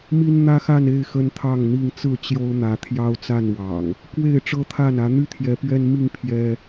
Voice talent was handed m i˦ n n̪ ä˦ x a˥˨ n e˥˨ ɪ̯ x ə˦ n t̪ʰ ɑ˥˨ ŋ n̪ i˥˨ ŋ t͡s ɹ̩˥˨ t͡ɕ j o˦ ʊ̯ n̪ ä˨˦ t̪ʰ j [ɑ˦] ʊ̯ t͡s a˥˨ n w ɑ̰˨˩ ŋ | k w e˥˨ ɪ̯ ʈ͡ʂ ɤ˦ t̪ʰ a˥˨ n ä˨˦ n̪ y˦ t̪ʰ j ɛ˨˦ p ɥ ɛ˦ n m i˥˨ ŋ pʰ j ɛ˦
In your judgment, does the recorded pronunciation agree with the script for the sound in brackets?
yes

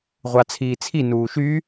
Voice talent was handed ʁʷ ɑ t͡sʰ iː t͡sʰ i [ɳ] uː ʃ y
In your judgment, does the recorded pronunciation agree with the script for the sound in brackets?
no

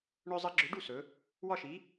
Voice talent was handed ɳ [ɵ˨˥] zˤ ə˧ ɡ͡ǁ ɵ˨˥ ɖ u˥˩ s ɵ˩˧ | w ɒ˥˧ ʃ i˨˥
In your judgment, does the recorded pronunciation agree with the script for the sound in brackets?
no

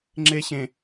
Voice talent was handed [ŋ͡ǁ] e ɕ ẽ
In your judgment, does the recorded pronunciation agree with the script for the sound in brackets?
yes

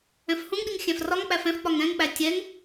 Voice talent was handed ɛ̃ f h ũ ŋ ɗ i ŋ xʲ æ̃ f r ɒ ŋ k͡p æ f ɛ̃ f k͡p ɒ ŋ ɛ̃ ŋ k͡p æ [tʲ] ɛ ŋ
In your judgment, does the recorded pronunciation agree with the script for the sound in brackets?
yes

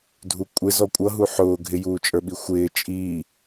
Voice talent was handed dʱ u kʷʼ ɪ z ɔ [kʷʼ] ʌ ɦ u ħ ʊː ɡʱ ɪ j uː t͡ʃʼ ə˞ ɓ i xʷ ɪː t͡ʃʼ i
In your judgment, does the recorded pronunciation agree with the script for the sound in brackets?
yes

